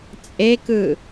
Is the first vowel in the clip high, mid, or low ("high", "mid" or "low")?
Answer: mid